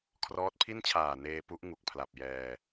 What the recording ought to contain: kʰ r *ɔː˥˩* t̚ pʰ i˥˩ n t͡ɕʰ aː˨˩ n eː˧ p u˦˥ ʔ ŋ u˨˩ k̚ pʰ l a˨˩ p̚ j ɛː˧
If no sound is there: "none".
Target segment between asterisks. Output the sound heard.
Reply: ɔː˦˥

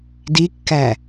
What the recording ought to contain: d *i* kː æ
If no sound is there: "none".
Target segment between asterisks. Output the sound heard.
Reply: i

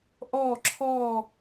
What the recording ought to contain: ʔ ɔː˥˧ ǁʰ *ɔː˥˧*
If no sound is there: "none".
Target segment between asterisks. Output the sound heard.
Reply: ɔː˥˧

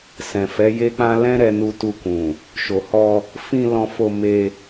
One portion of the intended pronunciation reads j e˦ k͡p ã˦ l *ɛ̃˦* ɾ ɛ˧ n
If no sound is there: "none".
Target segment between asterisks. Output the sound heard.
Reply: ɛ̃˦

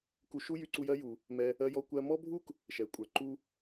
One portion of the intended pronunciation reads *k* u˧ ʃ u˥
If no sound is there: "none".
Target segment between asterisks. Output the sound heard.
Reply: k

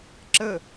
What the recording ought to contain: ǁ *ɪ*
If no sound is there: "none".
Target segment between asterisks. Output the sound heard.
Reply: ə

